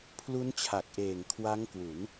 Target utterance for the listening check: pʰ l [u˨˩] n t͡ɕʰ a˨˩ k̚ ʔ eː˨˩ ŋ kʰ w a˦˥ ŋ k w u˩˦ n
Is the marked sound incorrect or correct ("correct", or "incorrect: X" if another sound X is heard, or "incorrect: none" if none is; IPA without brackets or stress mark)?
incorrect: u˦˥